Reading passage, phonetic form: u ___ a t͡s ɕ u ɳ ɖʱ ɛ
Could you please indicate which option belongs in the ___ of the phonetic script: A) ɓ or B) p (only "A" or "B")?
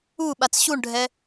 A